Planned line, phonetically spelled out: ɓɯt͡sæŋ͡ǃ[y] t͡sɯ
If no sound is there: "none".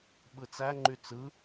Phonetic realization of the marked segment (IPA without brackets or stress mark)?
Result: y